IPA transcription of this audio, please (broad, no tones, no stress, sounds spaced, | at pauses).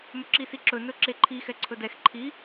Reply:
m ɵ ǁ i s i ǁ ɵ n ɵ ǁ e ǃʰ i x ɛ ǀʰ ɵ d ɛ x ǃʰ i